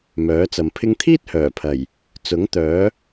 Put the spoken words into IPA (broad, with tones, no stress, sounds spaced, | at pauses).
m œː˨˥ t͡s ɐ˨ m pʰ ɪ˧ ŋ t̪ʰ iː˥ t̚ h œː˨˩ pʰ ɐ˨˩ j | t͡s ʊ˨˥ ŋ t̪ œː˨˥